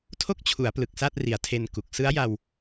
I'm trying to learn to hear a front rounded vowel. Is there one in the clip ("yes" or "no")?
no